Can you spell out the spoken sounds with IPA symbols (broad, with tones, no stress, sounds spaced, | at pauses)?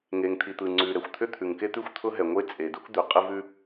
ŋ e˩ ŋ t̪ʰ i˩ t̪ ɯ˩ ŋ͡ǀ ʉ˩ ɾ ɛ˩ xʷ t̪ʰ ʏ˥ t̪ʰ ʉ˩ ŋ k e˥ t̪ ʉ˥ xʷ t̪ʰ ʊ˥ ɦ ɛ˩ ŋʷ e˥ t͡sʼ e˩ d u˥ k d̪ ʉ˩ qʼ ɯ˥ v ʉ˥